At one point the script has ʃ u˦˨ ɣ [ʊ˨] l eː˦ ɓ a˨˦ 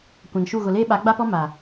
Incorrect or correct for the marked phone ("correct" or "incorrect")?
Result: correct